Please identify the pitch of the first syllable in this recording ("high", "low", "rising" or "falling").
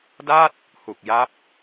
falling